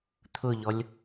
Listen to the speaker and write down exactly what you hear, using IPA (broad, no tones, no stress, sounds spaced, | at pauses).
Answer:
t̪ʰ ʊ ʎ ɔ lʲ